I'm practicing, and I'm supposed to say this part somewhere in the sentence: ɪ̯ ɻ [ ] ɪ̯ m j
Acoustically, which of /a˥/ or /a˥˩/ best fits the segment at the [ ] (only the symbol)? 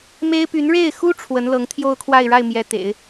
a˥˩